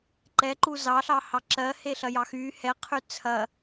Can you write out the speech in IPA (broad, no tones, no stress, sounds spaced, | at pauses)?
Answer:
ǃ ɛ ǃ u z ɑ ɬ ɑ h ɑ ǁ ɜ h e ɬ ɐ j ɑ x y h ɛ qʰ y t͡sʰ ɐ